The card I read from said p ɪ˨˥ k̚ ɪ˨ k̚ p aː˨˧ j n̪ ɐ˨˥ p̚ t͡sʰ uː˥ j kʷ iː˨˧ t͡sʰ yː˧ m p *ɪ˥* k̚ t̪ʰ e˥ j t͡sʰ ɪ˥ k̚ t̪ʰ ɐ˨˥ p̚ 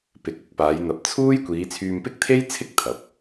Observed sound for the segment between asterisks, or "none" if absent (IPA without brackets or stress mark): ɪ˥